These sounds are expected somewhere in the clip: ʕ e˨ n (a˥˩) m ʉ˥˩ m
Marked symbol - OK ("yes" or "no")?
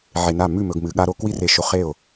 yes